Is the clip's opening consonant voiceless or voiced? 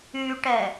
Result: voiceless